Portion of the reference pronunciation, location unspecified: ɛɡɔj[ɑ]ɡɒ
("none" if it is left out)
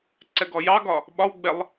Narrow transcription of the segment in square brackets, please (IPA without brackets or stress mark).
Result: ɑ